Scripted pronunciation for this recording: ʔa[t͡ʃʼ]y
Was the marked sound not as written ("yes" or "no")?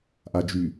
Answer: yes